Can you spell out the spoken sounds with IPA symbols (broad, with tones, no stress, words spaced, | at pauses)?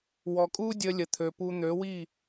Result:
wɔ˨kʼuː˦dʲəː˧lʲə˨ t̪ʰø˨pu˧ n̪ø˨˦wi˦˨